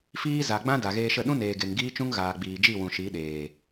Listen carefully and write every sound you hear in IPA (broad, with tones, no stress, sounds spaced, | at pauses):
f iː˦ z a˨ ɡ͡b ã˦ d a˨ ɣ eː˧ ʃ ə˦˨ ɗ ũ˦ n eː˨ ɡ e˨ ŋ ɡ iː˦ t͡ʃ ũ˦ ŋ ɣ aː˨ ɡ͡b iː˨ d͡ʒ i˦˨ w ũ˨ ʃ i˨˦ ɗ eː˨